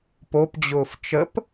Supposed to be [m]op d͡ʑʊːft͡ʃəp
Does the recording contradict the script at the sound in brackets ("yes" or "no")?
yes